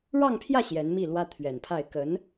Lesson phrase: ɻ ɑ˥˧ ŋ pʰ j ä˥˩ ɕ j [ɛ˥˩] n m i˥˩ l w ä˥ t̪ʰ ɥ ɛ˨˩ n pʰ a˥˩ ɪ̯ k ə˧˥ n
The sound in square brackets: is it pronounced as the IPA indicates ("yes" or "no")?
no